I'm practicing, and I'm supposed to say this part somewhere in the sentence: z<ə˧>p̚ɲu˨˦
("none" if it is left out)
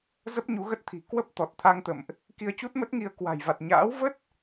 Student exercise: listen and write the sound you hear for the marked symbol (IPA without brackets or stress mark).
ə˦˥